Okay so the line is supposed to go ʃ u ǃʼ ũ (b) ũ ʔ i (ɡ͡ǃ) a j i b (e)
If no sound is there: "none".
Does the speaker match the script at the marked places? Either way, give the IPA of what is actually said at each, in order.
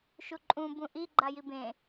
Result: b, ɡ͡ǃ, ẽ

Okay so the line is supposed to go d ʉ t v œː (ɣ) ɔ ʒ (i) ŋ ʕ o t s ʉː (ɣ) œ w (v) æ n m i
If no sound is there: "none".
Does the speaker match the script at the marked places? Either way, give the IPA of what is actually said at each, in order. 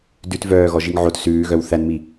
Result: ɣ, i, ɣ, θ

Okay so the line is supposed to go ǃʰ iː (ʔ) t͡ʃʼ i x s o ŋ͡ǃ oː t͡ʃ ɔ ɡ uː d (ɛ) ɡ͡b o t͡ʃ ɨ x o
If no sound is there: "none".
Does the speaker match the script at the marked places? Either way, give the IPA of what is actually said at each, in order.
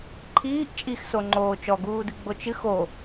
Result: ʔ, ɨ

